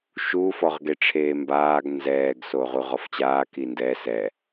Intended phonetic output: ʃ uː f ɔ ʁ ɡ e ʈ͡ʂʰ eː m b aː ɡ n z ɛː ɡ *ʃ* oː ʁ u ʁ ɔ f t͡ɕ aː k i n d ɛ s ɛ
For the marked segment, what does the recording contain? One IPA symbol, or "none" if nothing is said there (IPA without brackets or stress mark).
s